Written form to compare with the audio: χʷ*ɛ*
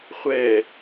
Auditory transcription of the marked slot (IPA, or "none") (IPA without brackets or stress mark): ɛ